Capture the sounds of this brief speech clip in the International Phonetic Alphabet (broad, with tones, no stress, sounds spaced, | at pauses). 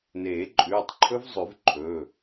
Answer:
n eː˨˩˦ ǃʼ ʉː˩˧˩ tˤ ǃʰ ɵ˦˥ v zˤ ʉ˨˩˦ v ǃʰ ɵ˩˧˩